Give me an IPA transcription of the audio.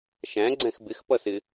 ʃ æ̃ ɡ͡ǀ ɛ̃ x b ɪ x p ʌ s ɪ

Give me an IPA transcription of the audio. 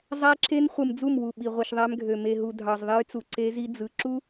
zˤ æ˦ ǁ e˦ n χʷ ɯ˨ m d͡z u˦˨ m w u˨ ɓ i˨ ʁʷ i˨ ʃ ðˤ æ˦ m ɡʱ ø˨ m e˨ ɦ u˨ dʱ ɑ˨ z ðˤ e˦ j t͡s u˨ ǀ e˦ z i˦ d͡z ɯ˨ ǁ u˦

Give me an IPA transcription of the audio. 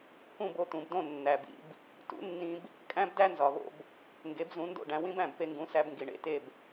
k ũ˥˩ b o˥˩ t̪ ũ˩ b d õ˥˩ nː æ˩ b ḭ˧ b | t ṵ˩˥ nː ĩ˧ b | kʼ æ̃˥ b d æ˥ n z ɒ˩ β o̰˧ b | ŋ ɡ e˩˥ b z ũ˩˥ n d o̰˥˩ ɖ æ̃˧ w ĩ˥ b æ̃˩ b p e˧ ŋ ɡ ũ˩˥ s æ˧ b ŋ ɡ i˩ ɳ ḛ˥˩ t e˥˩ b

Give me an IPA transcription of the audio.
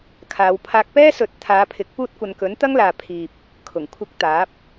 kʰ aː˨˧ w pʰ aː˧ k̚ p ɛː˥ s ɵ˨˥ t̚ t̪ʰ aː˨˧ pʰ ɪ˨˥ k̚ p uː˥ t̚ kʷ ɐ˧ n k ɵ˨˥ n t̪ ɐ˥ ŋ l aː˨ pʰ iː˨ p̚ | kʰ ʊ˨˩ ŋ kʷʰ ɪ˧ k̚ t̪ aː˨˥ p̚

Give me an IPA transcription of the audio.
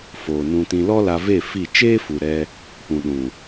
f oː˨ n ũ˧ t ĩ˧ l ɔ˦ l a˧ v e˦˨ f i˦˨ t͡ʃ eː˦ f u˨ ɾ ɛ˦ | p ũ˨ ɗ ũ˨

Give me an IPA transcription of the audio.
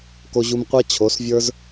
k o˧ ʑ u˧ m qʷ a˦ t͡ɕʰ o˨˦ s vʲ ə˞˦ z

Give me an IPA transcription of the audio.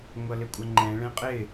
ŋʷ ʌ l ɪ kʷʼ ʌ ŋ͡ǃ ɛ̃ ɭ ɛ̃ qʼ ɪ

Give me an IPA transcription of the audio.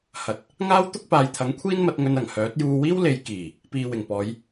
h ɐ˨ t̚ | ŋ aː˥ w t̪ ʊ˥ k̚ p aː˨ j t̪ʰ ɐ˨˥ ŋ kʷʰ iː˥ n m ɐ˨˥ t̚ ŋ ɵ˧ n ɐ˨˩ ŋ h œː˨˥ t̚ j uː˧ w iː˥ w l e˨˧ j k iː˨˩ | p iː˨ w ɪ˨˩ ŋ p ɔː˨˧ j

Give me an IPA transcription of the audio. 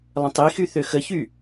lˠ ə̃ tˤ i x y θ ø x ə ç y

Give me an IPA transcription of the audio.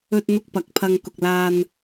ɵ˧ t̚ n̪ ʊ˧ k̚ p ɐ˨˥ k̚ pʰ ɐ˧ ŋ k ʊ˨ k̚ l aː˧ n

